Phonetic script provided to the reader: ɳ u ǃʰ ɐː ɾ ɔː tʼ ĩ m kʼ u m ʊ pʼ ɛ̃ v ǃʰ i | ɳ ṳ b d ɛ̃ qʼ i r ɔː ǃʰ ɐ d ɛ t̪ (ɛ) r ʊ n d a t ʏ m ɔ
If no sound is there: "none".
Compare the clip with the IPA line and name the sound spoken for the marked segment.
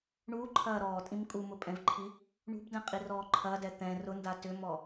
ɛ̃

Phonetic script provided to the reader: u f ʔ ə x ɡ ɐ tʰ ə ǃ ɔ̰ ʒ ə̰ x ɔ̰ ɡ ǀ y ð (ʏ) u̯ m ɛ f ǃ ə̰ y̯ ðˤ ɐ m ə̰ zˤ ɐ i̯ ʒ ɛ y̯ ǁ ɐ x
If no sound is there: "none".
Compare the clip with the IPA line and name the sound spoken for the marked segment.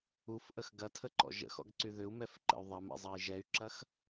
ʏ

